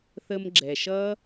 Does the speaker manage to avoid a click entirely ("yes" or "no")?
no